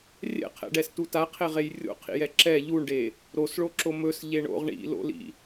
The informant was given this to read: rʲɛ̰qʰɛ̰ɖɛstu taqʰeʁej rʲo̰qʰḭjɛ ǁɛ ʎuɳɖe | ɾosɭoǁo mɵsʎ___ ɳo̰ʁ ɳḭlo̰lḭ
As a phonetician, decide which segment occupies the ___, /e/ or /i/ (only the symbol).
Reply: e